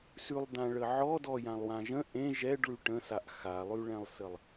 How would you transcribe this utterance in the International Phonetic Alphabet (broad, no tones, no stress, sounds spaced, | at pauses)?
s ʉ lˠ d ã ɭ ə ʕ ɔ d ɔ j ã lˠ w ã ʒ ə̃ ʔ ẽ ʒ ɛ ɖ ɭ ʉ ʈ ə̃ s a ʔ x a lˠ ʉ ɭ ɛ̃ lˠ s ə lˠ